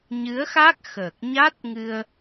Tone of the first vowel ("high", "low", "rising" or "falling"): rising